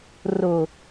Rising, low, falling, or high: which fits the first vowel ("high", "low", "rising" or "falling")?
low